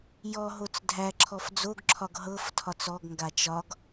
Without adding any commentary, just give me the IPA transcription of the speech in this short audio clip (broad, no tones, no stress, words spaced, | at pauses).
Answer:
jɔɦot͡s dʱæǁʰɔf d͡zoɡǁʰɒɡ ɦɤf tʰɒt͡sɔɡŋɡa t͡ʃɒɡ